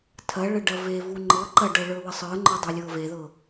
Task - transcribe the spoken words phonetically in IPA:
tʰɐɭə ɖɐvevu ŋ͡ǃɤ ǃɐɖɤ ɭə˞wəsˤə˞ŋ͡ǃə˞ dˤə˞lʲɤveðɤ

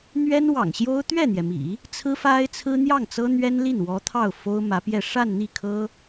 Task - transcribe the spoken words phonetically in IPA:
n̪ɥɛ˥nwɑ̰˨˩ŋɕjo˥ʊ̯ t̪ɥɛ˥˩n̪jɛ˩mḭ˨˩˦ | t͡sʰɹ̩˥fa˥ɪ̯ t͡sʰɹ̩˥n̪jɑ˥˩ŋ t͡sɤ˥n̪ɥɛ˥nli˥˩nwɔ˧˥ t̪ʰɑ˥˩ʊ̯fo˥ʊ̯mä˧˥pjɛ˥˧ ʂa˥˧nn̪i˥˩kʰɤ˥

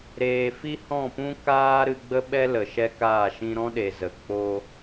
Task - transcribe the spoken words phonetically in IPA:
ɾeː˨fi˦hɔ̃˦˨pũ˦ kaː˦ɾɨ˧ɡ͡bə˦ɓɛ˦ lə˨ʃɛ˦kaː˦˨ʃĩ˦ ɾɔ̃˦ɗe˨ zə˨ k͡po˦

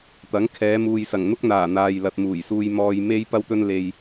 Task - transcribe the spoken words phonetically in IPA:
t̪ɐ˨˥ŋ kʰɛː˨˧muː˨jsɐ˨˩ŋ n̪ʊ˥k̚n̪aː˨˩ n̪aː˨jlɐ˨t̚muː˨˩jsuː˧j mɔː˧jme˥j pɐ˥wt̪ɵ˥n le˧j

